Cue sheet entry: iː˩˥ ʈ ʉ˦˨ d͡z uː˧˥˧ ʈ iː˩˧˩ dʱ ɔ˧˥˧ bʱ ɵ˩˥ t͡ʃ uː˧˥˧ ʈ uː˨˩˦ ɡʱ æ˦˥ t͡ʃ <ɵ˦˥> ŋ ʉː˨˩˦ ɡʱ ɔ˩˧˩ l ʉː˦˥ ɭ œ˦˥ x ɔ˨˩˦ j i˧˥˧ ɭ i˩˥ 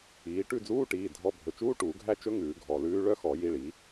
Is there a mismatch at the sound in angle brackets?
no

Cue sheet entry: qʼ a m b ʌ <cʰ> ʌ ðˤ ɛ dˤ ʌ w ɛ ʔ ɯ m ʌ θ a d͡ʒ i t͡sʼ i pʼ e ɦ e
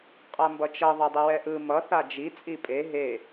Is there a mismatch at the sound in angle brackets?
yes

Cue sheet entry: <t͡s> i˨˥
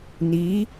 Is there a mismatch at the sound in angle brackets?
yes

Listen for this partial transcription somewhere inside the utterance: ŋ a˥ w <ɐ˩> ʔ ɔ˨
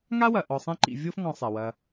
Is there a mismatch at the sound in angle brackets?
no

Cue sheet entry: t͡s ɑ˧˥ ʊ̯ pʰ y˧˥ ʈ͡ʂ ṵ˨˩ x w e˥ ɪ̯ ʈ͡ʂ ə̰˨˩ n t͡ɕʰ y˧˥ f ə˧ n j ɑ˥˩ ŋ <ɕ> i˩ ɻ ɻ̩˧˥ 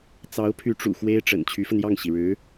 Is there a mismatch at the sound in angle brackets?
no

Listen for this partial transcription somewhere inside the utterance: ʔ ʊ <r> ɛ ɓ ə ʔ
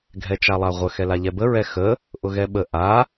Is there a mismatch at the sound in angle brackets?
yes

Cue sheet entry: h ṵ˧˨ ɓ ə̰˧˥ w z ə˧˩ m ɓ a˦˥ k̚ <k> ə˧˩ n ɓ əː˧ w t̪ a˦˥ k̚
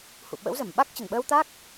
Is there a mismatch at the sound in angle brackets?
yes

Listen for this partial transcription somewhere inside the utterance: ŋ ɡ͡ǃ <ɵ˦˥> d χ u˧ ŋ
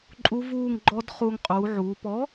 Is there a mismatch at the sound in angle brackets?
yes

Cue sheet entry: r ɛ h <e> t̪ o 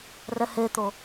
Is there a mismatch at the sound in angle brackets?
no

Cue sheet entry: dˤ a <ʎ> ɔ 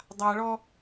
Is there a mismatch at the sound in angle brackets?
yes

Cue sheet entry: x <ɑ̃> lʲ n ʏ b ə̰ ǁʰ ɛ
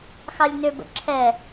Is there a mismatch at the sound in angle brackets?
yes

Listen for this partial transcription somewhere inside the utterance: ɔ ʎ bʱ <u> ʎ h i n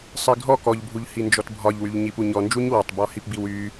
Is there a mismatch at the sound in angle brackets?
no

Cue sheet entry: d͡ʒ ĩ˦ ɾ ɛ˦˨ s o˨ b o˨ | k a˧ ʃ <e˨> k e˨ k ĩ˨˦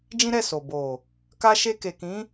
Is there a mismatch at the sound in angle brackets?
yes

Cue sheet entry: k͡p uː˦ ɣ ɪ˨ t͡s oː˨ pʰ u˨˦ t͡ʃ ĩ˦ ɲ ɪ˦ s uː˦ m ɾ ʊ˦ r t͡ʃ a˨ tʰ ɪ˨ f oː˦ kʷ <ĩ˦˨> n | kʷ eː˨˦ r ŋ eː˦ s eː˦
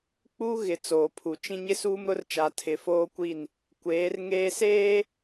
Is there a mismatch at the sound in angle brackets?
yes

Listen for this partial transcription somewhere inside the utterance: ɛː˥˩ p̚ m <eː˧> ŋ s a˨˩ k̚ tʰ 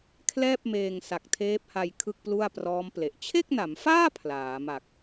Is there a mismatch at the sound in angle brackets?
no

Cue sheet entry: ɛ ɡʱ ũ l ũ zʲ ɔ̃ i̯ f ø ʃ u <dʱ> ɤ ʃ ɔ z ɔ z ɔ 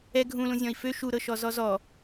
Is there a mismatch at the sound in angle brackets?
yes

